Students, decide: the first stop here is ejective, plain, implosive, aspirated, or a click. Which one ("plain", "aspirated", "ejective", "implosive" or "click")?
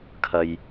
aspirated